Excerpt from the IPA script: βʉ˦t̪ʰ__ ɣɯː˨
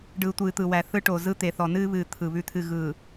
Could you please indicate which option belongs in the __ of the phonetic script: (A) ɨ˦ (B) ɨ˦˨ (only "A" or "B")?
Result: B